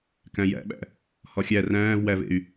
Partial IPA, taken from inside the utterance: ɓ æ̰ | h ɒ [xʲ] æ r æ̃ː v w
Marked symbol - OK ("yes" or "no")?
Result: yes